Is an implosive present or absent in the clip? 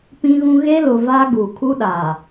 present